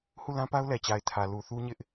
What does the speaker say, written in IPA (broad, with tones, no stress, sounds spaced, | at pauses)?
h u˦˨ l ã˦ p a˦ ʊ̯ l ɛ˨ t͡ɕ a˨ ɪ̯ tʰ ä˨ l u˨ θ u˦ ɲ ɪ˦ ʔ